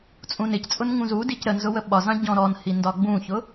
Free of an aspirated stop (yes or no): yes